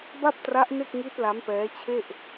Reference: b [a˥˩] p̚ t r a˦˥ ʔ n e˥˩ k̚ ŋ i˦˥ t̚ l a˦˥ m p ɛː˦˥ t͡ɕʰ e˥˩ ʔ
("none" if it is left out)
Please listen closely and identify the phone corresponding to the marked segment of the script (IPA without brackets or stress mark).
a˥˩